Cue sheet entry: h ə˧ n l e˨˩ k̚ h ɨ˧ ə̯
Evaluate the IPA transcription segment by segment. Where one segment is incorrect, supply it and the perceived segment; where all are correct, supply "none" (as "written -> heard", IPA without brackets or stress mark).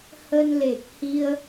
ɨ˧ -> i˧